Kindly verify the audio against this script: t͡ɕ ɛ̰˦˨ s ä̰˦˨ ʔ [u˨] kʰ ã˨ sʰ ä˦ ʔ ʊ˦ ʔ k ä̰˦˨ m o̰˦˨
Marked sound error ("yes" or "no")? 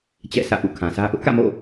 yes